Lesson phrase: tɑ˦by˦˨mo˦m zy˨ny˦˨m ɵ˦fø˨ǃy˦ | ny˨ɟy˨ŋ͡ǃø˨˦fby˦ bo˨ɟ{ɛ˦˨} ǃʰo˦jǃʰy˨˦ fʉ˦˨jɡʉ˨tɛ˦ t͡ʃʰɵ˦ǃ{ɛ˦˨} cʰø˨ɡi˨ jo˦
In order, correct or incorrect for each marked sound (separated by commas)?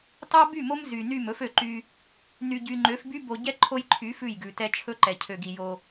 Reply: incorrect, incorrect